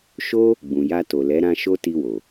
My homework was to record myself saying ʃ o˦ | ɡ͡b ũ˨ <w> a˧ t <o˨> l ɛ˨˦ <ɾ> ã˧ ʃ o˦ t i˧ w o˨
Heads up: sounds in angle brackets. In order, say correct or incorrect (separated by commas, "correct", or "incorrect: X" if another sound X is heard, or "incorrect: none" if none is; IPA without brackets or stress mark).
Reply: incorrect: j, correct, correct